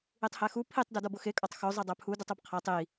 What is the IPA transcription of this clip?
i tˤ h æ x u pʰ i tˤ d o d ɒ b o x e kʼ ɒ tˤ x o zˤ e dˤ æ pʰ u d u tˤ u b qʰ æ tˤ i

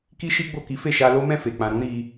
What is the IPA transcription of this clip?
k i˦ ʃ i˦ ɡ͡b o˦˨ k i˨˦ f e˦˨ ʃ a˧ l o˦ m ɛ̃˦˨ f e˨ k͡p ã˨ ɾ ũ˨˦ ɾ i˧

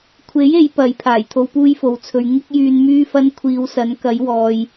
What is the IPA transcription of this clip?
kʷʰ e˨˥ j e˨˧ j p ɐ˨˥ j pʰ aː˨˩ j t̪ʰ o˧ w p uː˥ j f o˨ w t͡sʰ ɵ˨˧ ɥ ŋ ɪ˥ k̚ j yː˧ n m yː˥ f ɐ˥ n kʷʰ iː˨˧ w s ɐ˨˥ n k ɐ˨˥ j w ɔː˨ j

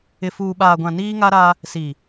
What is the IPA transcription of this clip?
ɪ˨ f uː˨ ɓ aː˨ ɡʷ ã˨ n iː˦ ŋ a˦ ɾ a˦ | s i˨

